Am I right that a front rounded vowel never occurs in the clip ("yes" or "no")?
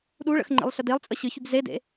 no